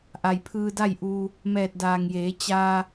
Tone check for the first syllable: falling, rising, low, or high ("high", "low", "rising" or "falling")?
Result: low